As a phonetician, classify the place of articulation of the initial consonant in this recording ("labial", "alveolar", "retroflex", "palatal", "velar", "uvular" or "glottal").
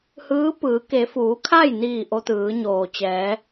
glottal